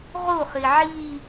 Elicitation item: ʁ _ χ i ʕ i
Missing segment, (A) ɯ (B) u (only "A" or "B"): B